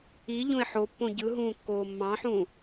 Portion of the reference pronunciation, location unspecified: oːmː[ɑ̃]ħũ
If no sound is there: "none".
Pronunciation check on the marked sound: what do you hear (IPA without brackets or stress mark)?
ɑ̃